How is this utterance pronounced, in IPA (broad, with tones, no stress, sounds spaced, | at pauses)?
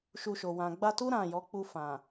ʃ u˧ ʃ o˨ w ã˨ ɡ͡b a˧ t u˦ ɾ ã˦˨ j ɔ˨˦ k͡p u˦˨ f ã˨